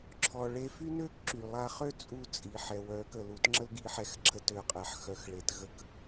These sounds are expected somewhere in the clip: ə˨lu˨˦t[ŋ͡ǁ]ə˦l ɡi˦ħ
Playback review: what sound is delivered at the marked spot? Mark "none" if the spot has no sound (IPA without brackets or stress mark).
ŋ͡ǁ